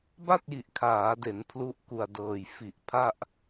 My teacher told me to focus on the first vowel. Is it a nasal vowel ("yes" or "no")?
no